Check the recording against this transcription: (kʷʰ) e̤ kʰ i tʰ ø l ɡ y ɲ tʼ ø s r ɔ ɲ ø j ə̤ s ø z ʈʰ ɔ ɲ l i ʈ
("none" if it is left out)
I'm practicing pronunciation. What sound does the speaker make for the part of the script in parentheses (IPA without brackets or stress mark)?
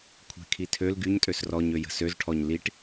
kʷʰ